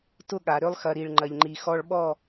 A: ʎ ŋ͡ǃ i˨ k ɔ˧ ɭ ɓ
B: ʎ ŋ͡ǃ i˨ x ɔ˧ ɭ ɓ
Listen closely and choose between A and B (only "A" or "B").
B